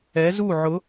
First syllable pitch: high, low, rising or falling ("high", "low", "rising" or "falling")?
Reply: rising